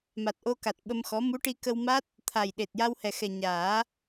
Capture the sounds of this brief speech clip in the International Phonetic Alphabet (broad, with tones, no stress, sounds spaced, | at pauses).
m a˨˩ t̚ ʔ o˧ k a˨˩ t̚ ɓ ə˧ m x ɔ˧˥ m u˧˥ ʈ i˧ k ə˧ w m a˦˥ t̚ | t̪ʰ a˨˩ j ɗ e˨˩ t̚ j a˧ w h ɛ˨˩ x ɛ˨˩ ɲ aː˨˩˦